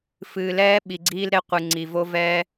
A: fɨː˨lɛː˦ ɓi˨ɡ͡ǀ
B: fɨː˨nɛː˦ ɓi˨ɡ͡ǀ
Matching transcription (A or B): A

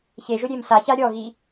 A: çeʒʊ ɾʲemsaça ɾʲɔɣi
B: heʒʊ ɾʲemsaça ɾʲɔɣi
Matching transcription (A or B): A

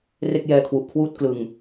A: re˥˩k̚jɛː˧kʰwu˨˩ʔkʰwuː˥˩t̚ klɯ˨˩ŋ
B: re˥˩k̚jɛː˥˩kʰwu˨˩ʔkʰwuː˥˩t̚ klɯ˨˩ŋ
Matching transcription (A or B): A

